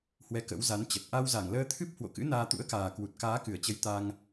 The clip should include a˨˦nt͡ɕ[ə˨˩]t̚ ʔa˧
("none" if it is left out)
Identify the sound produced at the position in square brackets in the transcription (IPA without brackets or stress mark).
ə˨˩